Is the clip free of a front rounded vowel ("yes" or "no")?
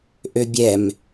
no